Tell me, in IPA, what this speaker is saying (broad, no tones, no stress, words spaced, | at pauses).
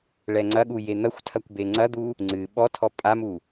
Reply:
ɭɛŋ͡ǀɐɠu jen̪ɐxʷtʰɐkʷ beŋ͡ǀɐd̪u | ŋ͡ǀɨ ɓɔtʰɔ pʼamu